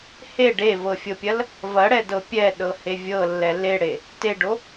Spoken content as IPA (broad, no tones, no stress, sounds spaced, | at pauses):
h e ɖ e v ɤ fʲ ɤ pʲ ɐ l | v ɐ ɽ ɛ d ɤ pʲ ɛ ɗ ɤ h e vʲ ɤ lː ɛ l e ɽ e | t e ɖ o